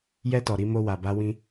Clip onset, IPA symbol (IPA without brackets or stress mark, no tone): j